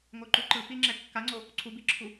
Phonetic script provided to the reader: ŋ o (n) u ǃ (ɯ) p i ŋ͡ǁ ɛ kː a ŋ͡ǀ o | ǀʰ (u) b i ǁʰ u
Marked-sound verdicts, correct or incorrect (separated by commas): incorrect, correct, correct